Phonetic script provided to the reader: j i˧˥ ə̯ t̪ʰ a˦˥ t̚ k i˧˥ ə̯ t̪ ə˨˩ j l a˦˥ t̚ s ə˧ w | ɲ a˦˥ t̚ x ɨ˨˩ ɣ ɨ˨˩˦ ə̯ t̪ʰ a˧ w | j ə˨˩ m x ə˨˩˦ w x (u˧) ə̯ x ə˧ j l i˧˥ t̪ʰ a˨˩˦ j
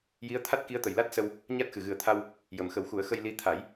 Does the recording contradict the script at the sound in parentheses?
yes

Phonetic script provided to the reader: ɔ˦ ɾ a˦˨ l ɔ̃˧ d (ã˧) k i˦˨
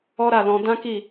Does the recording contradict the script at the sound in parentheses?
yes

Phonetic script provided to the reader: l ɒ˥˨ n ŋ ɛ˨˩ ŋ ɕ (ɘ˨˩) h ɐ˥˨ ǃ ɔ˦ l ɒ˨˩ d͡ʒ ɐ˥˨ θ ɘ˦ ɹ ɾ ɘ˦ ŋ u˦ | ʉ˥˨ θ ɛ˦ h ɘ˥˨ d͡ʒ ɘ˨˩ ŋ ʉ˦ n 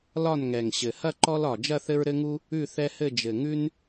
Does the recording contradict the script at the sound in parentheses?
no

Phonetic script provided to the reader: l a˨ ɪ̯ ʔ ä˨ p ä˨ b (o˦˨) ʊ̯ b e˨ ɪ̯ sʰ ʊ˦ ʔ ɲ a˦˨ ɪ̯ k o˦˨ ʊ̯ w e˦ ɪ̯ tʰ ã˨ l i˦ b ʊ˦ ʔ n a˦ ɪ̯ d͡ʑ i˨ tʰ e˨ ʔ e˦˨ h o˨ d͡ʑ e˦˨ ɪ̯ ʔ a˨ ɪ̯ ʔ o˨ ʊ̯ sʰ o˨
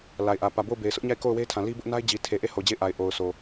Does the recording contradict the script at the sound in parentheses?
no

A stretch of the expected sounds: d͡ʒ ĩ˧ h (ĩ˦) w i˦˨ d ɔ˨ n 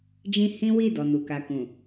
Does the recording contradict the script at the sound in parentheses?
no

